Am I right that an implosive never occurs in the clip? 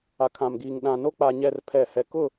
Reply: no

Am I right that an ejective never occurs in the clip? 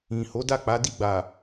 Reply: yes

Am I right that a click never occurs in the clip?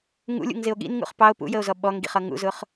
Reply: yes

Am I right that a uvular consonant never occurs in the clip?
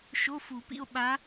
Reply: yes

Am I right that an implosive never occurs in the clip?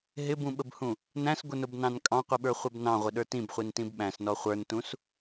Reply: no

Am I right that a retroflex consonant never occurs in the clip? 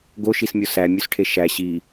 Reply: no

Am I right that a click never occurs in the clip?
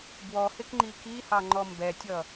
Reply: no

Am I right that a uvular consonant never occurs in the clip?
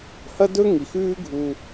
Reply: yes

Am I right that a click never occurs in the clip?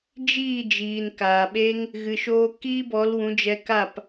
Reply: yes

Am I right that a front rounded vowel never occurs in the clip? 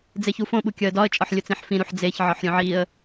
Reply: yes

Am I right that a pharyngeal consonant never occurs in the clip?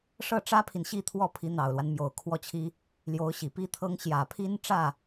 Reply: yes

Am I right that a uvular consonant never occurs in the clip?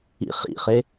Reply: no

